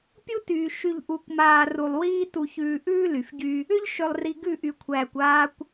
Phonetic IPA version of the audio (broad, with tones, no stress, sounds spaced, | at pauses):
pʲ u˦ t yː˨ ʃ y˨ ʎ ʔ u˨ kʷ m aː˨ r u˨ lˠ w iː˦ t u˨ ç ʉː˨ ʔ ʉː˦ l y˨ f ɟ y˦ | ʏ˦ ʎ ʃ ʏ˨ lˠ r i˨ ɡ ʉ˦˨ ʔ y˨ kʷʰ æː˨ kʷ aː˦ kʷ